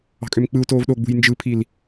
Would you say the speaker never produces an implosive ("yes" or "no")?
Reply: no